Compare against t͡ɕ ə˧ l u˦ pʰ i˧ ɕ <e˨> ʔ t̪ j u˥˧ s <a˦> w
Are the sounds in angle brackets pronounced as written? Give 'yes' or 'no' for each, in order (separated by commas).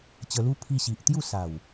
no, no